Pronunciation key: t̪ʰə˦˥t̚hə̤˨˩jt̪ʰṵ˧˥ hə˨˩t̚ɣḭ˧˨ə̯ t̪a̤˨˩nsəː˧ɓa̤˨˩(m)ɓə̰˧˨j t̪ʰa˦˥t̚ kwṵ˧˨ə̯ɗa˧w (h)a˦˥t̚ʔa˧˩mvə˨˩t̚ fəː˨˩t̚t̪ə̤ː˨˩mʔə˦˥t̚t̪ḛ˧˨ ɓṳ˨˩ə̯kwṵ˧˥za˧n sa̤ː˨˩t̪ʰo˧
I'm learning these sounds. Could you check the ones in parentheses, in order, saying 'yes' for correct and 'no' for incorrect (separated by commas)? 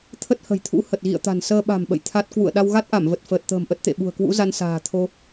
yes, no